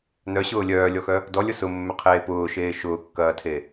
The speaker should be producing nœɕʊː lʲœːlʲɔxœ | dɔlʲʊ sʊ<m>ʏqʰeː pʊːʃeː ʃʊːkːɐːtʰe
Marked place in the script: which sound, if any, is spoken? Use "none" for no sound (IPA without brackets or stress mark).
mː